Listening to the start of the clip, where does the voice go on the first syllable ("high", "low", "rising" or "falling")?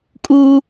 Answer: high